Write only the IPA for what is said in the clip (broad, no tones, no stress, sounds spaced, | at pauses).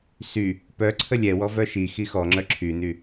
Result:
s y | p œ ǀʰ ə lʲ ɛ w ɔ v œ ʃ i x i x ɔ ŋ͡ǁ œ ǁʰ y n y